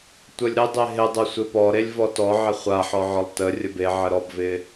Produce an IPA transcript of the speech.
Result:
tʷ ə lʲ ɾ ɪ dˤ e ɦ ɪ dˤ ə sʷ e p ɔ ɾ e lʲ v ɔ t ɔ ʕ ɪ χʷ a ħ ɔ ʕ ɔ lˠ t ə rʲ ə b e ʕ ə ɾ ɔ b v ɪ

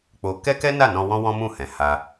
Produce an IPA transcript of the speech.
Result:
k͡p o˧ k ɛ˦ k ɛ˦ n a˦˨ n ɔ̃˧ w ɔ̃˦ w ɔ̃˦ m ũ˦˨ h ɛ̃˨ h a˧

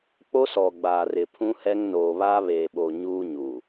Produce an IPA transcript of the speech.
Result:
k͡p o˦ s ɔ˨ ɡ͡b aː˨ r ɪ˨ pʰ ũ˦ h ɛ˦ ŋ n oː˨ β a˦ β eː˨ ɓ o˨ ɲ uː˦ ɲ u˨

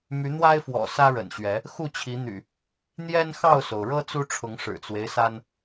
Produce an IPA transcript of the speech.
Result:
m y˨˦ n̪ w a˦ ɪ̯ f w ɔ̰˨˩ s ä˦ ɻ ə̰˨˩ n ɕ ɥ ɛ˨˦ | x u˥˨ t͡ɕʰ i˨˦ n̪ y̰˨˩ | n̪ j ɛ˦ n x ɑ˥˨ ʊ̯ s o˩ ʊ̯ ɻ ɤ˦ t͡s u˦ ʈ͡ʂʰ ʊ˨˦ ŋ ʂ ɻ̩˨˩ t͡s w e˦ ɪ̯ s a˦ n

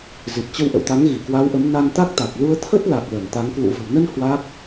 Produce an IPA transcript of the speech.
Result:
z i˨˩ t̚ t͡ɕ ə˧ w ʔ ə̰˧˨ w t̪ a˨˦ ŋ ɣ i˧˩ k w a˨˦ w ʔ ə˨˦ m n a˧ n t̪ a˦˥ k̚ t̪ a˨˩ k̚ l u˧ ə̯ t̪ʰ ə˦˥ t̚ l a˨˩ k̚ l ə˧˩ n t̪ a˨˦ ŋ k w ṵ˧˨ v ə̤˨˩ w n ə˧ n h w a˦˥ k̚

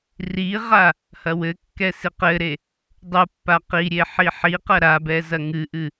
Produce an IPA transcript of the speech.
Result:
r i ʁ a | h ɐ w ɘ kː ɛ s i q ɘ ɾ e | dˤ u pː a q i ɾʲ e ħ i ħ i q ɐ ɾ a b ɛ z ɐ ŋ ɨ ʔ ɨ

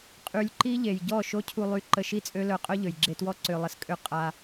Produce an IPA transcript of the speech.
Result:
qʼ y˧ lʲ ǃ i˦ ʎ e˨ j ɟ ɔ˦˨ ʃ o˦ cʰ u˧ lˠ y˧ ǃ ə˧ ʃ i˦ t͡sʼ ø˦ l œ˧ qʼ œ˦ ʎ ø˨ j ɡ͡ǁ e˧ t w ɔ˦ ǀ ø˧ lˠ ə˧ s kʼ ø˦ qʼ a˧

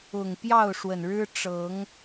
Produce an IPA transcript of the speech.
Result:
ʊ˨˩ ŋ p j ɑ˥˨ ʊ̯ ʂ w ə˨˩ n ɻ ɻ̩˦ ʈ͡ʂ ɤ˨˦ ŋ

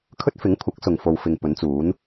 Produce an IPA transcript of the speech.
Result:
kʰ ɵ˥ t̚ f ɪ˨˥ ŋ kʷʰ ɐ˨˥ k̚ s ʊ˨ ŋ f o˨ w f ɪ˨ ŋ p ɵ˨˥ n t͡s uː˨˥ n

